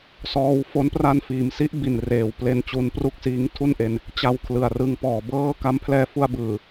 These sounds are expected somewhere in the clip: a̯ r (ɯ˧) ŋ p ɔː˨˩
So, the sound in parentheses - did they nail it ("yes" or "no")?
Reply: yes